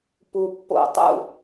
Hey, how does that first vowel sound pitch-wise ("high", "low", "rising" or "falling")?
low